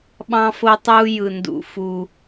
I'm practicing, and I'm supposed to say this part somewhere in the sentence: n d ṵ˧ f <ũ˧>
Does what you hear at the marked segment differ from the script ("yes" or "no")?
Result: yes